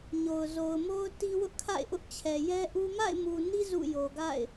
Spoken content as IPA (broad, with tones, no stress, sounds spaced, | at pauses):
ɲ o˨ ʊ̯ z o˨ ʊ̯ m o˦ ʊ̯ t i˦ w ʊ˦ ʔ kʰ a̰˦˨ ɪ̯ ʔ ʊ˦ ʔ t͡ɕʰ ɛ˨ j ɛ˦ ʔ u˦ m a̰˦˨ ɪ̯ m u˨ n i˦ z ṵ˦˨ j o˨ ɡ a̰˦˨ ɪ̯